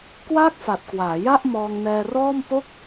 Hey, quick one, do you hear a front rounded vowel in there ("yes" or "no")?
no